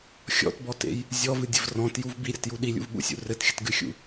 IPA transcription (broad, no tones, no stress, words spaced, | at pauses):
xʲɔ̰tbɔtḛj | zʲɔvɨdʲəv rɔ̃tjuv biɾʲɤtju ɗilʲṵvɓṵsʲṵ rɘtxʲətɡɨxʲṵ